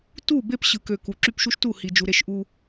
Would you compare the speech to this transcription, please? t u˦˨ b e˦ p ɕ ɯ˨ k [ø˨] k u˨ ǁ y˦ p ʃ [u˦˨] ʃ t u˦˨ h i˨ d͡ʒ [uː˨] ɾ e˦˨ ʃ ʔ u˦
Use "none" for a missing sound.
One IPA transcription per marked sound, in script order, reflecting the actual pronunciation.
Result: ø˨, u˦, u˨

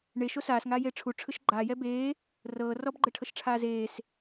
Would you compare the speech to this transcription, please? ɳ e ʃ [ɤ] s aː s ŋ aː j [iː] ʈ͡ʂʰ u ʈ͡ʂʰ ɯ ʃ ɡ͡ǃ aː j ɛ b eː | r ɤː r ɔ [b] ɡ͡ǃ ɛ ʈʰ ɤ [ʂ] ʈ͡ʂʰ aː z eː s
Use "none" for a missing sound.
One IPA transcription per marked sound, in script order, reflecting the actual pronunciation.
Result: o, eː, b, ʃ

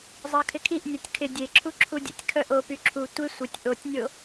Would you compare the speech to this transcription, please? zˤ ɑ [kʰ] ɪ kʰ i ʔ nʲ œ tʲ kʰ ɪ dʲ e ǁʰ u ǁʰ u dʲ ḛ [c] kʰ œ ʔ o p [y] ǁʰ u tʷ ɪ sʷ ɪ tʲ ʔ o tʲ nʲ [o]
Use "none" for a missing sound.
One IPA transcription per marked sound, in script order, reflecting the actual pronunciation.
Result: kʰ, tʲ, y, o

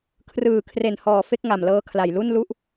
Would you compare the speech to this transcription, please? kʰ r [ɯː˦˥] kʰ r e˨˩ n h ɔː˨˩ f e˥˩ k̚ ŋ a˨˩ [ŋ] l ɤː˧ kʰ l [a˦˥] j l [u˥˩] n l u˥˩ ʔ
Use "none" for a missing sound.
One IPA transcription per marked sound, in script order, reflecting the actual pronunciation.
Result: ɯː˨˩, m, a˨˩, u˥˩

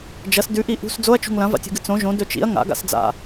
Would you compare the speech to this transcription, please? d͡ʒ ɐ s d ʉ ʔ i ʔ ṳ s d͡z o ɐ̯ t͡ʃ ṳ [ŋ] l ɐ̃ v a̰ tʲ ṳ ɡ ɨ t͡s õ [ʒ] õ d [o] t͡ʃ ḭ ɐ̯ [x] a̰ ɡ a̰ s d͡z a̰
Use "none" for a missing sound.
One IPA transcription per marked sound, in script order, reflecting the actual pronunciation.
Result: ŋ, ʒ, ɵ, ŋ

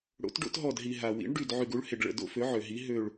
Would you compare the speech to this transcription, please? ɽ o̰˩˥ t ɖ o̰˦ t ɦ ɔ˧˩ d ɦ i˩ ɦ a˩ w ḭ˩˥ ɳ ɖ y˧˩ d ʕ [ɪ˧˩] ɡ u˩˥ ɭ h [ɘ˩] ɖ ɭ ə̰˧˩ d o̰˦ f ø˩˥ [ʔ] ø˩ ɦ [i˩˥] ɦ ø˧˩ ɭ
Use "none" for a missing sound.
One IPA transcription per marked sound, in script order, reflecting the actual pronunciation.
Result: y˧˩, e˩, ʕ, i˩˥

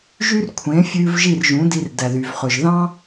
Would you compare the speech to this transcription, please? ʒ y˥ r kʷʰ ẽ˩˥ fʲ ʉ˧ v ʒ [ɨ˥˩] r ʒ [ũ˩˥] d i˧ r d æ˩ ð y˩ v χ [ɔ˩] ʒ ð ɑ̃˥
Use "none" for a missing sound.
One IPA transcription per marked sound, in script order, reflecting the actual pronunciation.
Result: i˥˩, ũ˩˥, ɵ˩

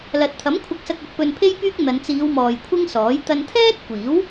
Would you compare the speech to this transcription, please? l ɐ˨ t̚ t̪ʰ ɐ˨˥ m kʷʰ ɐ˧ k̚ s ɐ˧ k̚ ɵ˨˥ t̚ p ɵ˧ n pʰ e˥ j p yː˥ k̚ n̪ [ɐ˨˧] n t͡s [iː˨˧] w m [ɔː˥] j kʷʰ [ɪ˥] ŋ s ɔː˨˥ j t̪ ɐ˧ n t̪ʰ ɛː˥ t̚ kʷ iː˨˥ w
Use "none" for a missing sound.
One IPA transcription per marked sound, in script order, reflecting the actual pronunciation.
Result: ɐ˨˧, iː˨˧, ɔː˨, ɪ˥

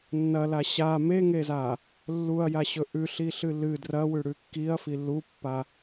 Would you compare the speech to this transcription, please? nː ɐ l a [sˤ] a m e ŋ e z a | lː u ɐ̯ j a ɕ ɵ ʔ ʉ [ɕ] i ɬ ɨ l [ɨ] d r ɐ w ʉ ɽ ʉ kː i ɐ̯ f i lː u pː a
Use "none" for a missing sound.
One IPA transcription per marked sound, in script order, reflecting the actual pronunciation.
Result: ɕ, ɬ, ɨ

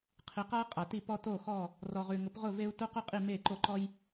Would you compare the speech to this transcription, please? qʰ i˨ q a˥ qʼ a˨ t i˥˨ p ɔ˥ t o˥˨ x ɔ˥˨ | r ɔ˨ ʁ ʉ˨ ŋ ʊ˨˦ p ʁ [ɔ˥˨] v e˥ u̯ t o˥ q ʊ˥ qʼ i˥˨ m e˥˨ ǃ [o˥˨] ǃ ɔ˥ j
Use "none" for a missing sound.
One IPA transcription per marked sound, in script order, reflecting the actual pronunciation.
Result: ʊ˥˨, o˥˨

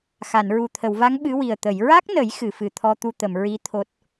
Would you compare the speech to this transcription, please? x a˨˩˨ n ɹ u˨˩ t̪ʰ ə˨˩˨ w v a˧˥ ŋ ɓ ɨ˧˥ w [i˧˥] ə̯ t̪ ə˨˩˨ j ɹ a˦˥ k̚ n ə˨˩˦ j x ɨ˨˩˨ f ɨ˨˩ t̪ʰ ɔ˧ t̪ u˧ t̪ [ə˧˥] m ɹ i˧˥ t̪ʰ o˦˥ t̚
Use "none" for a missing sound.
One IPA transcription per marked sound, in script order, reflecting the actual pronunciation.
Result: i˨˩, ə˨˩˨

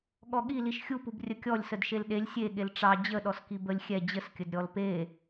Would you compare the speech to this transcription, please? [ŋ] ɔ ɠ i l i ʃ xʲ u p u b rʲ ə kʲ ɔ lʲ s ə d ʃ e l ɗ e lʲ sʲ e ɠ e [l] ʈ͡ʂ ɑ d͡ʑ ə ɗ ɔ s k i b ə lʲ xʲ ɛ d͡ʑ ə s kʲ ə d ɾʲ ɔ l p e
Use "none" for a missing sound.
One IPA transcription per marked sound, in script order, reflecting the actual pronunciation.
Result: ɠ, l

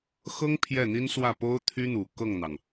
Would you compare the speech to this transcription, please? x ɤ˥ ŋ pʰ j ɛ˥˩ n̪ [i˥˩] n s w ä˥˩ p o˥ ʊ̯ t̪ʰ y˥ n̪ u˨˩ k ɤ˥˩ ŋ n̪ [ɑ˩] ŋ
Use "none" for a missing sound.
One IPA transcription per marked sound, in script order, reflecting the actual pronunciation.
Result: i˥, ɑ˩

